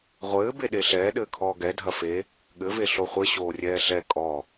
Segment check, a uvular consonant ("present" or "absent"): present